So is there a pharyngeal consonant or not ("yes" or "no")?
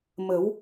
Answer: no